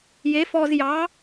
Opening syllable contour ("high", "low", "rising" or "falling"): rising